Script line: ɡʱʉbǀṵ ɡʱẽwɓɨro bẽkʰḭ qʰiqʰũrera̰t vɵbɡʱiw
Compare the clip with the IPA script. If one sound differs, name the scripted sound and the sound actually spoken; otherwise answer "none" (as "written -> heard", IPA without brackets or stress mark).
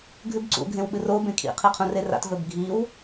none